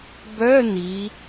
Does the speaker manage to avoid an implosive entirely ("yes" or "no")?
yes